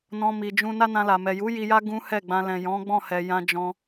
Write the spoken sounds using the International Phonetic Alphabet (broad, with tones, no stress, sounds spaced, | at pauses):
n ɔ̃˧ m i˨ d͡ʒ ũ˧ n a˦ n ã˧ l a˨ m ɛ˨ j u˨˦ j i˧ j a˦ ɡ ũ˦ h ɛ˦˨ ɡ͡b ã˧ l ɛ̃˨ j ɔ̃˨˦ ɡ͡b ɔ̃˦˨ h ɛ˨ j ã˧ d͡ʒ ɔ̃˧